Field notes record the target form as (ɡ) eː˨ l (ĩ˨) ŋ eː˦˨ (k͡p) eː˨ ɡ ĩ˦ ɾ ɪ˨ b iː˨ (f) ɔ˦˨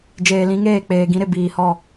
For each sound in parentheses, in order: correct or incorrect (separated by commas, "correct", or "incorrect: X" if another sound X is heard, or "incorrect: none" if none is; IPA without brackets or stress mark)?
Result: incorrect: d͡ʒ, incorrect: ĩ˦, correct, incorrect: h